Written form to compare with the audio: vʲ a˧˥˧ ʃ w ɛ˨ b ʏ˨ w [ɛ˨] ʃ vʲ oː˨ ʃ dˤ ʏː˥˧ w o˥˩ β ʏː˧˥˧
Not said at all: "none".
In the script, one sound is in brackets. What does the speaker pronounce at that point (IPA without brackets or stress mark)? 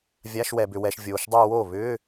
ɛ˨